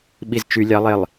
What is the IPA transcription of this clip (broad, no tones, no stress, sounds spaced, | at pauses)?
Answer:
ɓ i z t͡ʃ y lʲ ɑ lˠ e lˠ